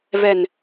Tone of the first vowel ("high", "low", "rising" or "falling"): low